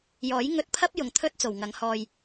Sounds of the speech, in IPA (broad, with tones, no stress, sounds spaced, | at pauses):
j ɔː˨˥ j ŋ ɵ˧ t̚ pʰ ɐ˥ p̚ j ʊ˨ ŋ t̪ʰ ɵ˥ t̚ t͡s o˨˩ w ŋ ɐ˨˥ ŋ h ɔː˧ j